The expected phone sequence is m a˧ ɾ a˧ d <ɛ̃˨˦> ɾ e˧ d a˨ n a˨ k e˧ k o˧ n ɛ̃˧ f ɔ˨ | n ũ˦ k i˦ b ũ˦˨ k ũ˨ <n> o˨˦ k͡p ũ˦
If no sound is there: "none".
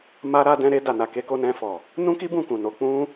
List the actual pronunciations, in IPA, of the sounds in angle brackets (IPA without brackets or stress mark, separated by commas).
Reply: ɛ̃˧, n